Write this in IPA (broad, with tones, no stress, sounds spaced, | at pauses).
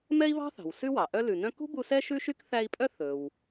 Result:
m ɛ˥ i̯ β ɑ̤˥ θ ɑ̤˩ w s ʉ˥ w ɑ˩ ʔ œ˦ l ʉ˨ n œ̃˦ k ṳ˥ b u˦ s ɛ˥ ʃ ʉ˥ ʃ y˥ k θ æ˦ i̯ pʼ œ˥ θ ɵ˩ w